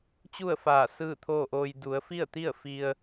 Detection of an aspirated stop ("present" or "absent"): present